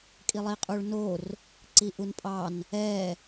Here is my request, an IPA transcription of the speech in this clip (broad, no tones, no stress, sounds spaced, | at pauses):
kʼ i lˠ i qʼ u ɭ n o r | ǀ i ʔ u n pʼ ɑ n | ɛ